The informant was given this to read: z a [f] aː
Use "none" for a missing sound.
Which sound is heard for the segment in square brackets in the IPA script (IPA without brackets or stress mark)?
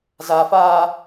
f